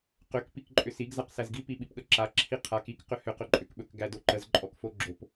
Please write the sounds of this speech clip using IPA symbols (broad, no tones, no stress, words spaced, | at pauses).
qʏk pikǃʼʏsiɡ zaqsæzɡi piɓipɠəǁa ǁʰiqʰak ik qʏhʏ qɵǃʼʏk ɓɵkɡædoǃəz ǃʼɔkfoɡ͡ǁop